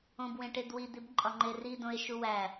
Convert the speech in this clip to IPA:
õ b w ẽ ʈ e d w i d̪ i b ǃʼ ɒ ŋ͡ǃ e r i d õ e̯ ʃ u w æ

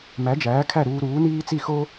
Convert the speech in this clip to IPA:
m æ˩˥ d͡ʒ æː˩˥ kʰ æ˥˩ ɾ uː˧ ɾ uː˩˥ n iː˥ t͡s i˥˩ x o˥

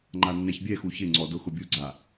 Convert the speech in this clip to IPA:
ŋ͡ǃ a nː ɛ ç bʲ ɛ x u ç ɪ ŋ͡ǀ ɔ d ʊ x ʊ bʲ u ɡ͡ǀ a

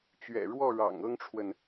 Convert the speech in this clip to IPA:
t͡ɕ ɥ ɛ̰˨˩ ɻ w ɔ˥˨ ɻ ɑ̰˨˩ ŋ ɤ˦ ŋ ʈ͡ʂʰ w ə˨ n

